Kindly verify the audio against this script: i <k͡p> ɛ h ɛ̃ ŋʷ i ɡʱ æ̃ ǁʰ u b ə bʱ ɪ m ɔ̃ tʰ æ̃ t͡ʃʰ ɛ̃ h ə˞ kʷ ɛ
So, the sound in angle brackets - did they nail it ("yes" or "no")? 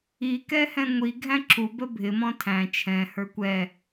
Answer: no